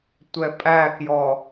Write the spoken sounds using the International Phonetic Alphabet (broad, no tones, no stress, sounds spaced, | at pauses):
tʷ ɛ pʼ æ k j ɔ